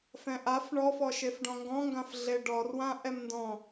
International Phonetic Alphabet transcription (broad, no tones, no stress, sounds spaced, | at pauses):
f ɛ̃ ʔ a f ɳ ɔ f ɔ ʃ e f ɖ ɔ̃ ŋ ɡ ɔ̃ ŋ ɡ ã f ɮ e ɖ ɔ r w ã ʔ ɛ m n d ɔ̃